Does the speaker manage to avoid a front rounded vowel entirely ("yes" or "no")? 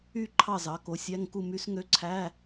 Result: no